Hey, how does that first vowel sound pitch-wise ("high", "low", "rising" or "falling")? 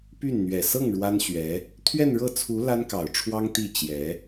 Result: falling